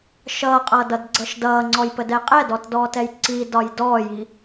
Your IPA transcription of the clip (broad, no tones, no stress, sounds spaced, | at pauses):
ʃ ʌː qʼ ʌː d ʌ d ɡ͡ǀ ʌ ʃ d ʌː ŋ͡ǀ ɔ j p ə d ɛ qʼ ɛ d ɔ t d ɔː t ɛ j ǀ i d ɒ j d ɔː j i